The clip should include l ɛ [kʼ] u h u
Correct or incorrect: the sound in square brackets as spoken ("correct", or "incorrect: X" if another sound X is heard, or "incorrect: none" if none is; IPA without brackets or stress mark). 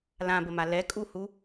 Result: correct